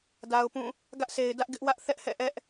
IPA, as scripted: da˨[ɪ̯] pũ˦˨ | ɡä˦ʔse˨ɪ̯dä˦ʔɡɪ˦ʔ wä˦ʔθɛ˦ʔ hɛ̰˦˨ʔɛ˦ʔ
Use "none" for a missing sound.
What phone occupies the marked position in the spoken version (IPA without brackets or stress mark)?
ʊ̯